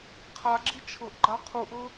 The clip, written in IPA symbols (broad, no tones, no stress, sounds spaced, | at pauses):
qʰ a ɡ͡ǁ i t͡ʃʰ ɤ ʔ ɡ͡ǃ a qʰ u ʔ ɤ